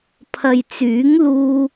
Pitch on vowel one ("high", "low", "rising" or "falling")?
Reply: low